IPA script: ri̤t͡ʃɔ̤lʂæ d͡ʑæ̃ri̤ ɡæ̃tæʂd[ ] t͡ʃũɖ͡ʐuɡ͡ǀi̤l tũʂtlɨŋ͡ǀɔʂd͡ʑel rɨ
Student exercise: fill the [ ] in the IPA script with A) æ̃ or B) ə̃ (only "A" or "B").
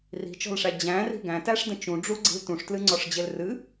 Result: B